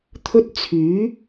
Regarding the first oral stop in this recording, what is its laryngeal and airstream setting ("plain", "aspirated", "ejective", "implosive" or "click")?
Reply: aspirated